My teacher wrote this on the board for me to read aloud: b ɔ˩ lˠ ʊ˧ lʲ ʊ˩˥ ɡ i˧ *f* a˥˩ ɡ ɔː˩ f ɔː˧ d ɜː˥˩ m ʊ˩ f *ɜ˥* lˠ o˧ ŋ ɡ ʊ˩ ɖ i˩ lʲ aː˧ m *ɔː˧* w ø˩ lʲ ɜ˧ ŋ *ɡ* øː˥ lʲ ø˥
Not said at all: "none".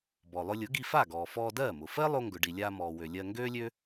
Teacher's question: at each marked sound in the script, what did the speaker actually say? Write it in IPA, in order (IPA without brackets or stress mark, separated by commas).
f, ɜ˥, ɔː˩, ɡ